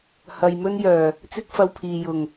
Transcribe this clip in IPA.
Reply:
h ɐ˨ j m ɵ˥ n j œː˨˩ | t͡s ɪ˥ k̚ f ɐ˧ w pʰ iː˨ j ʊ˨˩ ŋ

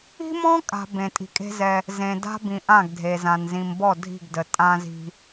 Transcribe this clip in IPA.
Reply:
i̤˦ m ɔ̃˦ kʼ a̤˨ b ẽ˨ tʼ i̤˨ kʼ e̤˦ z ɛ˦ | z ẽ˨ d a̤˦ b ĩ˨ ʔ ã˦˨ ɡ dʱ e˨ z ã˨ n z ĩ˨ m b ɔ˦˨ dʱ i̤˦˨ ɡ d ə˨ tʼ ã˦ z i̤˦

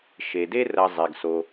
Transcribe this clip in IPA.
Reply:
ʃ e˩ d e˦ r ɐ˨ zˤ e˩ ɡ s o˩

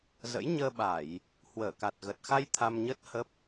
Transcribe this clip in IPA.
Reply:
z ə̰˧˥ j ɲ əː˧ ɓ a˧˩˨ j | h w əː˧˩ k a˨˩ t̚ ɣ ə˨˩ t̚ x a˧ j t̪ʰ a˧ m ɲ ə˦˥ t̚ h ə˦˥ p̚

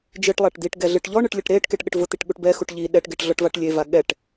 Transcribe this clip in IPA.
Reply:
d͡ʒ ɨ ʈ lˠ a ʈ d̪ i ʈ ɡ ɛ ɮ ɨ ʈ ʎ ɔ ɳ ɨ ʈ lʲ ɘ ʈ ɾ e ʈ k e ʈ ɠ ɘ ʈ v ʊ t̪ i ʈ ɠ u ʈ b ɛ x u ʈ ʎ i ɗ ɛ ʈ ɡ e ʈ ɮ ɔ ʈ v a ʈ lʲ e v a ɠ ɛ ʈ

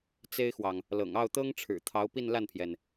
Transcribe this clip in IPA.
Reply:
t͡s e˥ ɪ̯ x w ɑ˨ ŋ | l ɤ̰˨˩ ŋ ɑ˥˩ ʊ̯ t̪ ɤ˥ ŋ ʈ͡ʂʰ ɻ̩˨˩ t̪ʰ ɑ˧˥ ʊ̯ p i˥˧ n l a˥˩ n pʰ j ɛ˩ n

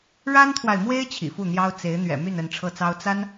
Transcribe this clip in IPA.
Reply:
ɻ a˥ n t̪ʰ w a˨ ɪ̯ m w e˥ ɪ̯ t͡ɕʰ ḭ˨˩ f u˥˩ n̪ j ɑ˥ ʊ̯ t͡s e˧˥ ɪ̯ n̪ ɥ ɛ̰˨˩ m y˥˧ n ə˥˧ n ʈ͡ʂʰ ɤ˥˩ t͡s ɑ˥ ʊ̯ t͡s a˥ n

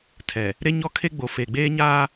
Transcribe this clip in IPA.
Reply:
tʰ ɛ˨ | ɾ e˦ ɲ ɔ˦ kʰ e˦ ɡ͡b o˨ f e˨ ɡ͡b eː˦ ɲ aː˦

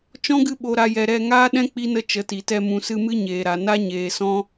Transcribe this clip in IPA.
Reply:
t͡ʃ ɔ̃˦ ɡ ɨ˧ ɓ o˨ ɾ a˨ j ɛ˨ ɾ ɛ˧ ŋ aː˦ ɗ ɛ̃˦ k͡p i˦ n ə˦ t͡ʃ ə˨˦ t i˨ t ɛ˧ m ũ˨ s ɨ˧ m ɨ˦ ɲ eː˨ ɾ a˨ n a˦ ɲ eː˨ s ɔ̃˦

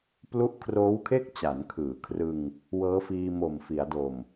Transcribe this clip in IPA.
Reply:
p l u˦˥ ʔ kʰ r oː˦˥ w kʰ e˥˩ k̚ t͡ɕ a˩˦ n kʰ ɯː˩˦ kʰ r ɯ˧ ŋ | w ɤː˦˥ f iː˧ m o˨˩ m f i˩˦ a̯ d o˨˩ m

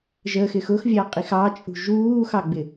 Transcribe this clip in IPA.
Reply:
ʒ ə x ɪ x ʊ x vʲ ɑ qʼ i x ɑ t͡ʃʼ ṳ ʒ uː x ɑ ɡ͡b ɪ

